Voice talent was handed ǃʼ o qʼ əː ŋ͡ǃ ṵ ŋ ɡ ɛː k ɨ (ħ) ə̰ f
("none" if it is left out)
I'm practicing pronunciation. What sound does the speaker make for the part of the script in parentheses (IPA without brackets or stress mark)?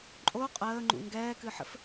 ħ